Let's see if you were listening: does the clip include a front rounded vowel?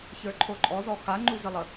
no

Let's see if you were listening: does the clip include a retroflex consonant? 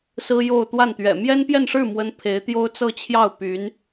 yes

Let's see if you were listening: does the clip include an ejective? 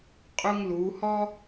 yes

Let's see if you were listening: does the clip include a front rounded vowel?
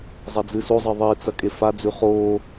no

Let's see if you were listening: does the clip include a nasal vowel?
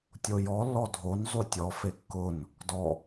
no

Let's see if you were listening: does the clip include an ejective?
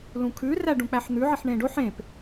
no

